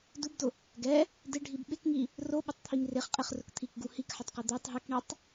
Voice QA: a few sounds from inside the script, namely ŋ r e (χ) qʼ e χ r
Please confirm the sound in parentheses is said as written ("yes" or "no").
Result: yes